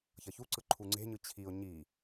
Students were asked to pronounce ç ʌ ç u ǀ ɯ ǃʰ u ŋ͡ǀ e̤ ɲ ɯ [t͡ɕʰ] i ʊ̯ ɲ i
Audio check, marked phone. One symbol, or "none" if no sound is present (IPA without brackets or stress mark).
t͡ɕʰ